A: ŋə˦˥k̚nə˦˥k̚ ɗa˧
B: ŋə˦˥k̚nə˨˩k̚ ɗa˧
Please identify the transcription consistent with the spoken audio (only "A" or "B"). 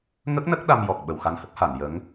A